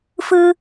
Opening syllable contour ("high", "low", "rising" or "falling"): high